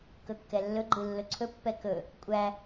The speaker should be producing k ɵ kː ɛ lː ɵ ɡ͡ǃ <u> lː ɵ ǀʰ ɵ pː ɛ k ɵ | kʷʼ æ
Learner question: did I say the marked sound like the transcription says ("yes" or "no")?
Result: no